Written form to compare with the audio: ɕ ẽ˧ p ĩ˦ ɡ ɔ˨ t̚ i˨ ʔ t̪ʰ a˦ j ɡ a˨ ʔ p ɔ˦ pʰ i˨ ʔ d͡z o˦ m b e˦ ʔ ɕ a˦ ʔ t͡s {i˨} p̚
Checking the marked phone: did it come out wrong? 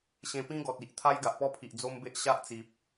no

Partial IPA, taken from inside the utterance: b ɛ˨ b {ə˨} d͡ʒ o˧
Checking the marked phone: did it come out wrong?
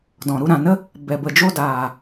no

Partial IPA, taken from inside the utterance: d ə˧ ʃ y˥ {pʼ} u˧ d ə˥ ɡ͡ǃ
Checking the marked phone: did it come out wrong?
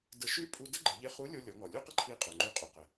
no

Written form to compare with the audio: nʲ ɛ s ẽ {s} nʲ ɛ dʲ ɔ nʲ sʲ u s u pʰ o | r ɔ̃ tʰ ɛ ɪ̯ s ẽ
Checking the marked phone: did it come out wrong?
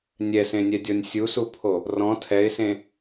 yes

